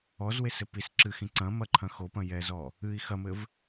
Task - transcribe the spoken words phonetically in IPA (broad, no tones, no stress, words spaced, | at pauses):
ɔzwesɘ pis ǁɨxĩ ǀɐ̃mɐǃʰɐ̃ xopɐ̃jɛzɔ | ɨi̯ xɐmɘv